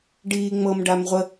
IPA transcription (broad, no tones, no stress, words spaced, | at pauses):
ɖiːŋ͡mɤm ɖamʁʷə